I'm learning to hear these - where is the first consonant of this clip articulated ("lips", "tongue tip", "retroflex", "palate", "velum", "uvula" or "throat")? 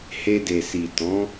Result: throat